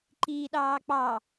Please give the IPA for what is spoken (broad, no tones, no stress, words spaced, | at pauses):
ǃiːɗɑːk͡pɑ